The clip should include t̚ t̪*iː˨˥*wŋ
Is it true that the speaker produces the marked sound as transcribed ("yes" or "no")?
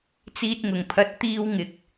no